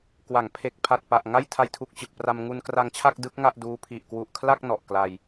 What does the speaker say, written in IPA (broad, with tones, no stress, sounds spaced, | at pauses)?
k w a˩˦ ŋ pʰ e˨˩ k̚ pʰ a˨˩ t̚ p a˨˩ ʔ ŋ a˥˩ j tʰ a˧ j tʰ u˨˩ k̚ t͡ɕ ɯ˨˩ k̚ p r a˧ m ŋ u˧ n k r a˧ ŋ t͡ɕʰ a˥˩ k̚ d ɯ˦˥ k̚ ŋ a˥˩ ʔ d uː˦˥ pʰ i˨˩ ʔ k w u˨˩ ʔ kʰ l a˥˩ k̚ n ɔ˨˩ ʔ k l a˧ j